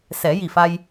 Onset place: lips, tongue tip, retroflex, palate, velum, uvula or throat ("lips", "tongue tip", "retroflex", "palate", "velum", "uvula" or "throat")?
tongue tip